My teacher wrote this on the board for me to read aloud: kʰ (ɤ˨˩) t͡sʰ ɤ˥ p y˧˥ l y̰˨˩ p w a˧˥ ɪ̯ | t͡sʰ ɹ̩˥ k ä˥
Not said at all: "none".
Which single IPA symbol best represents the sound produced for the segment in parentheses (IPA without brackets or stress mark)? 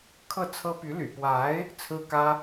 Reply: ɤ˥˩